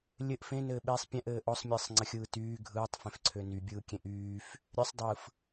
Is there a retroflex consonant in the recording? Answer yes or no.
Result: no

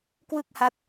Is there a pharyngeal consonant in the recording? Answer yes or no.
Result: no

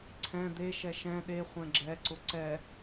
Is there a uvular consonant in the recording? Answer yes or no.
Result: yes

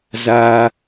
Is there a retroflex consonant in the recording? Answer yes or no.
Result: no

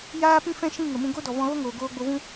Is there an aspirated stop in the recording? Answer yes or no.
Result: no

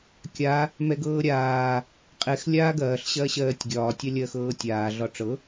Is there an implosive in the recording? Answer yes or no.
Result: no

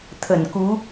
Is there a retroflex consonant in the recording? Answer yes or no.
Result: no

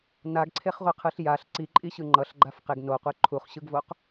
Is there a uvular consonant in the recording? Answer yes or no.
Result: yes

